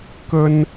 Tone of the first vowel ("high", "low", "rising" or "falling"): high